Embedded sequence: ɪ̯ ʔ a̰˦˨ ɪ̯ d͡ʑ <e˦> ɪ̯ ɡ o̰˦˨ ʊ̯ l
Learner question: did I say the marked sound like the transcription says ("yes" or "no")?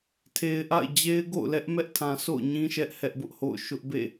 yes